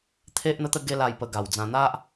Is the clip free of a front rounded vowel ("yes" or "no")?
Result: yes